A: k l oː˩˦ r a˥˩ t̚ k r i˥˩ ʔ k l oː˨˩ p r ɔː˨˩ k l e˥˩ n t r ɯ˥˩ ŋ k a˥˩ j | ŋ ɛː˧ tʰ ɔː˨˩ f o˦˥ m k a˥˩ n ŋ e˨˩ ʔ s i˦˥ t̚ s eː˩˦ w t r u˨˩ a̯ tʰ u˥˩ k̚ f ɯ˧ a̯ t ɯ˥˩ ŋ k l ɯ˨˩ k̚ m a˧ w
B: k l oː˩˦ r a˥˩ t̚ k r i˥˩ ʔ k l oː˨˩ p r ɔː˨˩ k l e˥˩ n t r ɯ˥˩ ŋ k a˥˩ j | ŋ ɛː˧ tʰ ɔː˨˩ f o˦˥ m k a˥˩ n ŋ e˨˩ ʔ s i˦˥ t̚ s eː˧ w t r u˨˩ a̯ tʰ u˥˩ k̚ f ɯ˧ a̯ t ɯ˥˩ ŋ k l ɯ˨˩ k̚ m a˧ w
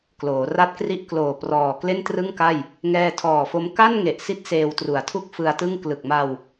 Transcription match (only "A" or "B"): B